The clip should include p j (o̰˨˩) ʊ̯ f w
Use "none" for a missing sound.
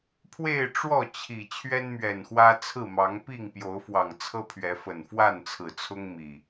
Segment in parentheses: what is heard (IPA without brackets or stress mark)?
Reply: o˨˦